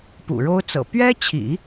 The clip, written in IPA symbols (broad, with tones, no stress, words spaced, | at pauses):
pṵ˨˩ɻo˥ʊ̯t͡sɤ̰˨˩ pɥɛ˥t͡ɕʰḭ˨˩˦